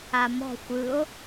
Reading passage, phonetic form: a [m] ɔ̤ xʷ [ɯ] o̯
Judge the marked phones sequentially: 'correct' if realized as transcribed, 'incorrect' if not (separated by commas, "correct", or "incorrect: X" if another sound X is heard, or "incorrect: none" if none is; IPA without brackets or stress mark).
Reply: correct, correct